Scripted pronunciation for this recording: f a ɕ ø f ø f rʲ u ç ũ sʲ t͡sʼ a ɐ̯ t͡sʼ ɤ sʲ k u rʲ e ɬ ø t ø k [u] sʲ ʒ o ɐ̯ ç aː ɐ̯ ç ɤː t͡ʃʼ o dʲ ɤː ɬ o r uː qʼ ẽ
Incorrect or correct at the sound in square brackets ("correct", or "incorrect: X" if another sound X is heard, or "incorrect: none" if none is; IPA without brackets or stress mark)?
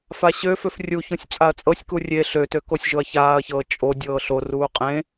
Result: incorrect: o